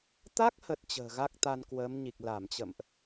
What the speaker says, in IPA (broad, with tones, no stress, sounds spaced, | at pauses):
t̪ a˦˥ k̚ h ə˨˩ t̚ t͡ɕ ə̤ː˨˩ ɣ a˦˥ k̚ t̪ a˧ n k w əː˨˦ m ɲ i˨˩ k̚ l a˧˩ m t͡ɕ ə̰˧˨ m ʔ